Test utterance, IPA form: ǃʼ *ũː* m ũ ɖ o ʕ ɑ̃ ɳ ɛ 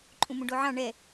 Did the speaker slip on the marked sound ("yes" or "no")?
yes